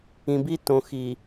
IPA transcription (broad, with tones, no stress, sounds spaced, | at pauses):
ĩ˨ b i˦ t õ˨ x i˨